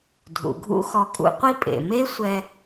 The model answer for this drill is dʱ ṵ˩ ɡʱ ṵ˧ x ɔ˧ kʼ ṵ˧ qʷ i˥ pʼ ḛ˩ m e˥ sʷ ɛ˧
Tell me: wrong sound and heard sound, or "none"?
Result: none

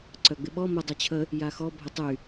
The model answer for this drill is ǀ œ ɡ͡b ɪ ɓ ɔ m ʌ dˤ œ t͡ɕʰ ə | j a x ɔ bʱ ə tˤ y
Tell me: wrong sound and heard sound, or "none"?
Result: ʌ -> ə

